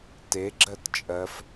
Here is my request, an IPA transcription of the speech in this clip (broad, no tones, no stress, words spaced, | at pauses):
teɡ͡ǁɜt t͡ʃʼɜf